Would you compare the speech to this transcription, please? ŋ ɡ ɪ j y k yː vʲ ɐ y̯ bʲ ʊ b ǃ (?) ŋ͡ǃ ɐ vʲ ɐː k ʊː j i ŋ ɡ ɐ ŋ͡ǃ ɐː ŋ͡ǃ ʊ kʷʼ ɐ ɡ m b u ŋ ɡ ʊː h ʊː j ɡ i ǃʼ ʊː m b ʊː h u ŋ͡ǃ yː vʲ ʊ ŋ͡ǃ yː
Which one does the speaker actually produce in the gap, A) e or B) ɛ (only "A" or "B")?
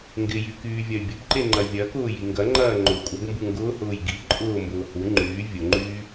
A